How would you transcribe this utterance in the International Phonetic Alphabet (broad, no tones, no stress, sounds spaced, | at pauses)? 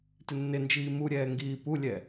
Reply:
t ɪ nː ɪ n d͡ʒ iː m u ɾʲ ɛː ŋ ɡ iː p u lʲ ɛ